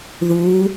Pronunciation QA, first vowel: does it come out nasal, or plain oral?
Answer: oral